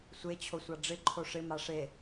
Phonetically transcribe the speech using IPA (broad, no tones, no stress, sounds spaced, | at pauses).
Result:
sʷ e t͡ɕʰ o sʷ a ɖ͡ʐ ɪ ǃʰ o ʂ ɪ m a ʂ e